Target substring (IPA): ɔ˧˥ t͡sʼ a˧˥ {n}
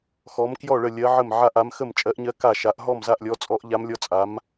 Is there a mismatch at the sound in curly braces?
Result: yes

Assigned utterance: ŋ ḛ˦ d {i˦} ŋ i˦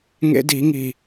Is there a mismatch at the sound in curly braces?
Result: yes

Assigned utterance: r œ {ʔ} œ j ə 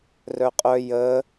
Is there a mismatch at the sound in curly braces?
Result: yes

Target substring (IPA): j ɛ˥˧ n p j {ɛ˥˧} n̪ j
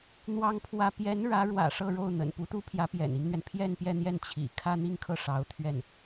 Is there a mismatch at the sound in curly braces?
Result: no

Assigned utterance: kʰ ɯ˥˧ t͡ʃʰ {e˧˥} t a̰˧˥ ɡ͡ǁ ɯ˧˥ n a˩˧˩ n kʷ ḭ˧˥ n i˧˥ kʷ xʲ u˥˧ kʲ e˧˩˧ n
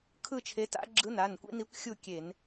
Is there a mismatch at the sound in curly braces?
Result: no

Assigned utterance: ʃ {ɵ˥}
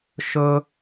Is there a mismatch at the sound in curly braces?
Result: no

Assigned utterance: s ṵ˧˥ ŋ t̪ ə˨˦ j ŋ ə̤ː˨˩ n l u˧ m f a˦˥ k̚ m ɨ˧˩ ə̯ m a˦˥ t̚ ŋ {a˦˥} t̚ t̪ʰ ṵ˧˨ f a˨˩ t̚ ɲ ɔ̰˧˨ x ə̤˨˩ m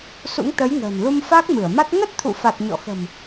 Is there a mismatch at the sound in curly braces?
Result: yes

